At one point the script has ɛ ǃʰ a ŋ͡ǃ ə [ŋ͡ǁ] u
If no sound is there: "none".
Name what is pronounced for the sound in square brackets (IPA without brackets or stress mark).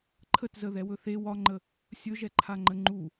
ŋ͡ǃ